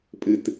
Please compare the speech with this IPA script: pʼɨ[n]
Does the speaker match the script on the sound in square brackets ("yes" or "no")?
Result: no